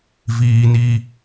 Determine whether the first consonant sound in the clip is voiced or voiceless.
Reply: voiced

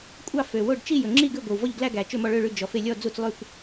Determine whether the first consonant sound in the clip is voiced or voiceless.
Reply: voiceless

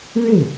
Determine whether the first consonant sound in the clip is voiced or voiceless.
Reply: voiced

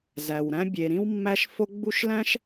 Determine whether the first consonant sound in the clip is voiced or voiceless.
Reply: voiced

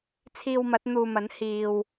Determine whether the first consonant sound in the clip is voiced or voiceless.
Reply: voiceless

